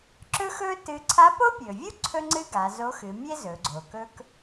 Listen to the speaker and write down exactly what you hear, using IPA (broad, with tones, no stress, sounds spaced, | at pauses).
ǁ ɵ˥ x ɵ˥ t ɨ˧˥ ǀʰ a˧˥ p o˥ pʲ ɵ˩ vʲ u˥ ǀʰ ɵ˥ ŋ͡ǀ ɨ˥ ɡ a˩˧ z o˧˥ x ɨ˩˧ mʲ e˥ z ɵ˩˧ ɡ͡ǀ o˩ k ɵ˥ k